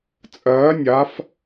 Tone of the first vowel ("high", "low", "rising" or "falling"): rising